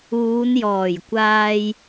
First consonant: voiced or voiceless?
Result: voiced